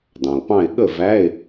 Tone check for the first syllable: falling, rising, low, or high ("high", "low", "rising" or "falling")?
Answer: low